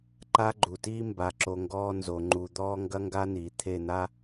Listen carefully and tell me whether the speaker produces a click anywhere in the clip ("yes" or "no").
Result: yes